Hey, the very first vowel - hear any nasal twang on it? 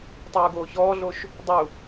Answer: no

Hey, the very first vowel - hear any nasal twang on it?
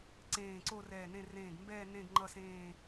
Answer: yes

